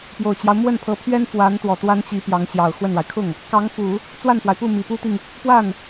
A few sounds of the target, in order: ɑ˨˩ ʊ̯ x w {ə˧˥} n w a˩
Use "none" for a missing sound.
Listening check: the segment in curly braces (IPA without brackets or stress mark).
ə˥˩